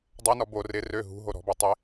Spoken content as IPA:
dˤ œ n ɔ b o r ɪ r ø ɦ ṳ ɦ o ɾ ɔ̤ b o tˤ ɪ

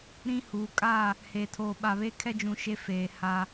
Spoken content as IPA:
ɾ ĩ˦ h u˨˦ kʼ a˦˨ | h eː˨ tʰ oː˨ ɓ a˨ β e˦ kʰ ɛ˦ d͡ʒ ũ˨ ʃ e˦ f eː˨ h a˦

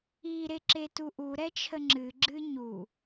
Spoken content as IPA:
i ɾ e ǁ e t u ʔ u ɾ ɛ t͡ʃʰ ə ŋ͡ǁ ɨ ɡ͡ǁ ɨ ɲ u

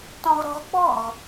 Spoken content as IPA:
t ɔ̃ ʁ ɾ ɔ̤ ʁ k͡p ɔ̤ ʁ

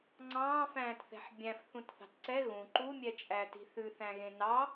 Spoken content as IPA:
ŋ͡ǀ ɑ̃ː f æ̃ː t θ ɛ̤ ħ bʲ æ̃ f θ ũ t θ ɑ̤ t ǀ ɛ ɣ ũ ǃ u mʲ ɛ t͡ʃʼ æ t i̤ θ ʉ θ æ̃ ɣ ẽ n ɑ

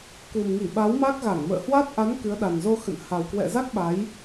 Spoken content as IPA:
k u˨˩ m ŋ i˧˩ ɓ a˨˦ w m a˦˥ k̚ ɣ a˧˩ ŋ m ə̰ː˧˨ h w a˦˥ t̚ ʔ a˨˦ n k ɨ˨˦ ə̯ ɗ a˨˩ n z o˧ x ə̰˧˨ n h a˨˩ w k w ɛ̰˧˨ z a˦˥ k̚ ɓ a˨˦ j

